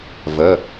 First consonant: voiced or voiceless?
voiced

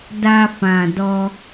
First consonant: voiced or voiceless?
voiced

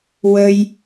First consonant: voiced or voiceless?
voiced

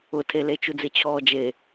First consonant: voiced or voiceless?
voiceless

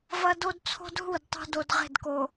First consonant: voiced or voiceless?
voiced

